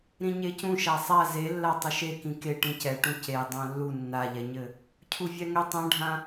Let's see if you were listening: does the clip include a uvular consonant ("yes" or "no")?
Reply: no